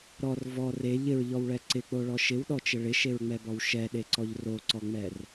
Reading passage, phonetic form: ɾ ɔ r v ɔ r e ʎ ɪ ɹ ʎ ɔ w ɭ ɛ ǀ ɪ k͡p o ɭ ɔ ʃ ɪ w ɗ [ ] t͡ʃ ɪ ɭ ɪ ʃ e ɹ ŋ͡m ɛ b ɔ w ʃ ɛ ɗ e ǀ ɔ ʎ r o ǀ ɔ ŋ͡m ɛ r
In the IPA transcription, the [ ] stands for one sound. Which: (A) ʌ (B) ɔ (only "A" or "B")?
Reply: B